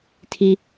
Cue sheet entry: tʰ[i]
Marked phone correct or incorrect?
correct